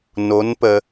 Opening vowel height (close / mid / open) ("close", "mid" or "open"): mid